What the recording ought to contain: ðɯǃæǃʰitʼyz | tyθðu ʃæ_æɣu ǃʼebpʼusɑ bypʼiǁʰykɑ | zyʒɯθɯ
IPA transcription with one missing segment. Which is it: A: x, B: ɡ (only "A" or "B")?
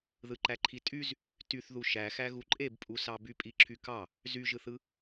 A